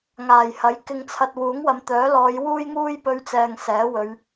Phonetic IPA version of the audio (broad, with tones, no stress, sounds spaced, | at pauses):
ŋ aː˨˩ j h ɐ˨˥ j k ɪ˧ ŋ t͡sʰ ɐ˧ t̚ w uː˨˥ ŋ w ɐ˨ m t̪ œː˨˥ l ɔː˨˧ j w uː˥ j ŋ uː˥ j p ɵ˧ ɥ t͡s ɛː˨ ŋ s ɛː˨˥ w ɵ˨˧ ɥ